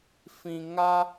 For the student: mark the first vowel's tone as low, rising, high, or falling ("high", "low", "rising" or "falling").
low